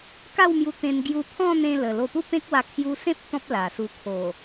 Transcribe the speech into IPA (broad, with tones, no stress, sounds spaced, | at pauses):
k a˥˧ w m j u˧ t̪ ẽ˧ n ɡ j u˧ pʰ ɔ̃˥˧ n̪ ẽ˧ l ə˨˩ l o˧ p u˦ p ẽ˦ k̚ w a˧ kʰ j u˧ s ẽ˦ p̚ t̪ ɔ̃˦ p̚ l a˨˩ s u˧ kʰ o˨˩